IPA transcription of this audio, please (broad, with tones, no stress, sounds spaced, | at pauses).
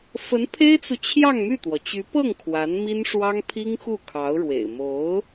f ə˧˥ n pʰ e˥ ɪ̯ t͡s u˨ t͡ɕʰ j ɑ˥˧ ŋ m y˥˩ t̪ w ɔ˩ t͡ɕ y˧˥ p ɤ˥˩ ŋ kʰ w a˧˥ n m i˥ n ʂ w ɑ˥ ŋ pʰ i˥ ŋ x u˥˩ kʰ ɑ˧˥ ʊ̯ ɻ w ḛ˨˩ ɪ̯ m o˧˥ ʊ̯